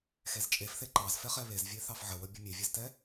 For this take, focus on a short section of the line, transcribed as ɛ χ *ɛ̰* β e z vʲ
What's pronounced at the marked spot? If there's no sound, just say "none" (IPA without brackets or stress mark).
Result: ɛ